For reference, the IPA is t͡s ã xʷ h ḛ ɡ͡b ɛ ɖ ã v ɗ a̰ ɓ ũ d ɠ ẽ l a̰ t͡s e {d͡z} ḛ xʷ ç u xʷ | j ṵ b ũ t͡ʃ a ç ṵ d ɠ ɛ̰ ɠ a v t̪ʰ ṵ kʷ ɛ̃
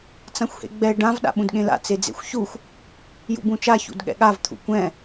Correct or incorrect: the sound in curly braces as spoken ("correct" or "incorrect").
correct